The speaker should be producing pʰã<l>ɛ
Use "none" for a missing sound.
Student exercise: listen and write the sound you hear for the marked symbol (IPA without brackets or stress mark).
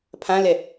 l